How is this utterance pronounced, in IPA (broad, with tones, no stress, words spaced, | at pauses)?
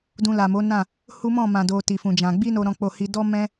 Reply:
dũ˧la˨mo˨˦nã˦˨ | hu˦mɔ̃˦˨ mã˨do˨ ti˨fũ˨d͡ʒã˨ ɡ͡bi˧no˨ ɾɔ̃˨k͡po˨hi˨dɔ˧ mɛ̃˦